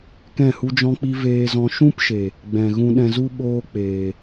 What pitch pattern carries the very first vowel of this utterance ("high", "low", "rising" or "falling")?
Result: falling